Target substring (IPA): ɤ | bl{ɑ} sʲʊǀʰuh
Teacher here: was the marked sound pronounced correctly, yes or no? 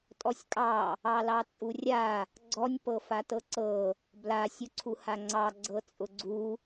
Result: no